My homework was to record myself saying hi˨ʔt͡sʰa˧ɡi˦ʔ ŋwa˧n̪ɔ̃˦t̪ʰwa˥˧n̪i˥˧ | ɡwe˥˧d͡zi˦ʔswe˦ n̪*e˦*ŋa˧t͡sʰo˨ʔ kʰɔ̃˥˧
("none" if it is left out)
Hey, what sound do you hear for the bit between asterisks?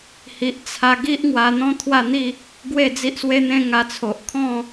ẽ˦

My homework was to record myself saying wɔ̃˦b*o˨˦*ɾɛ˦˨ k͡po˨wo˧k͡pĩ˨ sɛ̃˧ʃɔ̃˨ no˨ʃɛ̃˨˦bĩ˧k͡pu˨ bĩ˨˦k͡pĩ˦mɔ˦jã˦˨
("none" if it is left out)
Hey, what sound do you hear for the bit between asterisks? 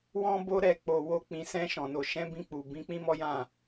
o˦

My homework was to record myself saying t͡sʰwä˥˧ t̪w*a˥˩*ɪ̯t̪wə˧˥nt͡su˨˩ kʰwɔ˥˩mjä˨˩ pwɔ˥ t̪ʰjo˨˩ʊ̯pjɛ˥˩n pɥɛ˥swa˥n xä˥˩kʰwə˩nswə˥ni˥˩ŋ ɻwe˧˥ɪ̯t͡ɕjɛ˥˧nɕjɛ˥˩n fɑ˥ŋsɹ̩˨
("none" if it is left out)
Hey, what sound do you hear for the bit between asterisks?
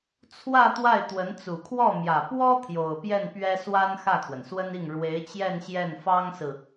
a˥˩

